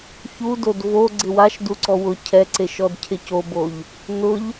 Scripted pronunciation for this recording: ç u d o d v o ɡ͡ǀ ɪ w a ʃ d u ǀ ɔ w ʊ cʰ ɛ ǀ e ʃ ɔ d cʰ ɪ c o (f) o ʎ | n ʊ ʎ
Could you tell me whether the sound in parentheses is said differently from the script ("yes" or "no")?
yes